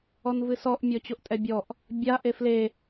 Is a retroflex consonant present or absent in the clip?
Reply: absent